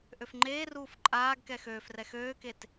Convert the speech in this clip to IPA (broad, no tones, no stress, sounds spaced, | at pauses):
ʔ ø f ŋ͡ǃ eː r uː f ǃʼ aː ɡ k ɛ x øː f r ɛ x øː k e t